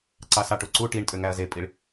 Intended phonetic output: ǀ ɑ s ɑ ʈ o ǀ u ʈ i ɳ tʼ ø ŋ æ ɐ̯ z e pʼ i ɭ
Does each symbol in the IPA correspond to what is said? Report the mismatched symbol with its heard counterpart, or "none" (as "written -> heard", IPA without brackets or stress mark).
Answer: none